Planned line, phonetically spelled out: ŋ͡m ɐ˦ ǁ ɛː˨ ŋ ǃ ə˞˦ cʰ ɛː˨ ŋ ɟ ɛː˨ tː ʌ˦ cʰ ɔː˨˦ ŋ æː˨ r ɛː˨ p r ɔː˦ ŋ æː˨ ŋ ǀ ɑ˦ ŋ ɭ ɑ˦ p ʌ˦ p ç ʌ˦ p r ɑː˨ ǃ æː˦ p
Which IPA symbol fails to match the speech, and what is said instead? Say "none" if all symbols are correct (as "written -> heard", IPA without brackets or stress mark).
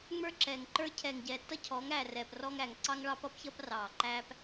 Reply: ɐ˦ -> ə˞˦